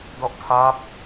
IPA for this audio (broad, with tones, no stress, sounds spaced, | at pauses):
d ɔ˦˥ ʔ tʰ aː˦˥ p̚